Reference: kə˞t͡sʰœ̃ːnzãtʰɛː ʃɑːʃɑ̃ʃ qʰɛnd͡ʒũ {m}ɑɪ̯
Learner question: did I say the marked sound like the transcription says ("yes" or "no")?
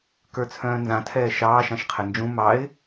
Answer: yes